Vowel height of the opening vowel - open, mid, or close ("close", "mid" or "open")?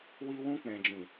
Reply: close